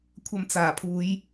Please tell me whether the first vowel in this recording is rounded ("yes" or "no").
no